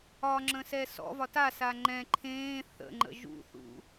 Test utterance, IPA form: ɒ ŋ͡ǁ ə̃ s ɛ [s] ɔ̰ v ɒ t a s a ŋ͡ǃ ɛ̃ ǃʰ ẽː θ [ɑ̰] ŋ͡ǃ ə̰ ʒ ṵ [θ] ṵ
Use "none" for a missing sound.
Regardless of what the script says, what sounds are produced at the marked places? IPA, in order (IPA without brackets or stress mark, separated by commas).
s, ə̰, θ